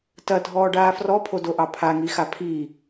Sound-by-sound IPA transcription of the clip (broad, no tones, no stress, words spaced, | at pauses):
tɐdʱɔːɖaː frɔpʰodoʔɑ pʰaŋixa pʰi